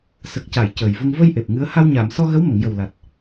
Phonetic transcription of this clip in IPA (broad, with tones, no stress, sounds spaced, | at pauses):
s ə˨˩ k̚ c a˨˩˨ j c əː˨˩ j v ə˧ ŋ v ə˧ j ʔ e˨˩ p̚ ŋ ɨ˧˥ ə̯ h a˧ w ɲ aː˨˩˨ m s ɔ˧ ɣ ə˧˥ w m ə˨˩˨ ŋ j ə˨˩ w l a˨˩ t̚